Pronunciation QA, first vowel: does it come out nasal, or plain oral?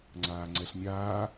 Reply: oral